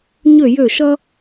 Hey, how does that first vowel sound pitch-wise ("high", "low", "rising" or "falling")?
falling